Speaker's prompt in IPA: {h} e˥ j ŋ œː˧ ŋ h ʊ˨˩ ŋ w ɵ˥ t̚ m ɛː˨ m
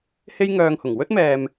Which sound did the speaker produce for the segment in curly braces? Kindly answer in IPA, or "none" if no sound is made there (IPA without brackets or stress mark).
h